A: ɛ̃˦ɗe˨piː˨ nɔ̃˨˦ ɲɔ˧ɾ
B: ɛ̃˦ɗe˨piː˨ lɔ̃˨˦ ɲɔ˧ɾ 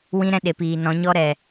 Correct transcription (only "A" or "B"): A